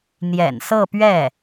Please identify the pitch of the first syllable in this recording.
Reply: low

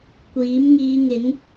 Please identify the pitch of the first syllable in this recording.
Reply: rising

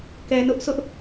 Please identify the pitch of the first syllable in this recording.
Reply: low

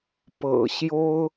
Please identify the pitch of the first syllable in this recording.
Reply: low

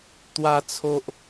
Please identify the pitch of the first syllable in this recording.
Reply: high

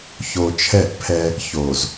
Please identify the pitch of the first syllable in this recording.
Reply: low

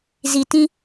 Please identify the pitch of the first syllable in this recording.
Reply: low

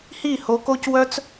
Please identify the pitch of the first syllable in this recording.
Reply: falling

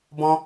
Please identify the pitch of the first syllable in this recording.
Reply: high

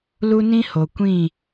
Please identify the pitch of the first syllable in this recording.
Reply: high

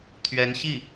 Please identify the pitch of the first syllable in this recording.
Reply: rising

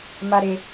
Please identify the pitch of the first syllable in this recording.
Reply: high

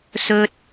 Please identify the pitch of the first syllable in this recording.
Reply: high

